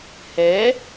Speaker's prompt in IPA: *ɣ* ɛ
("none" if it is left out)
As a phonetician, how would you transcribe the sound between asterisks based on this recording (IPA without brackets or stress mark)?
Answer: h